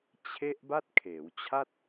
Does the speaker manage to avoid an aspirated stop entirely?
no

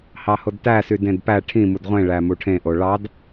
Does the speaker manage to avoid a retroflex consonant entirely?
no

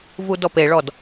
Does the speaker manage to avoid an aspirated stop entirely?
yes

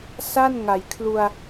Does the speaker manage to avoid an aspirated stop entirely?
no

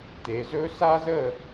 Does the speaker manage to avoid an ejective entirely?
yes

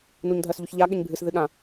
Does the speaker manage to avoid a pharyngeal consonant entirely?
yes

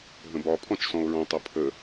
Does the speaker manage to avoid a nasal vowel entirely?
no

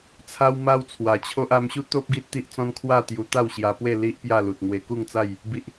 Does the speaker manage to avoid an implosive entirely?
yes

